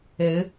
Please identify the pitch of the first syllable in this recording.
rising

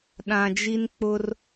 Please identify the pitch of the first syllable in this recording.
low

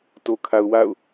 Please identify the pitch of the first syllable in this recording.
low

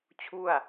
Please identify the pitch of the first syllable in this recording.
falling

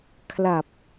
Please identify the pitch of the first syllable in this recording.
low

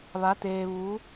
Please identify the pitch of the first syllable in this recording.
rising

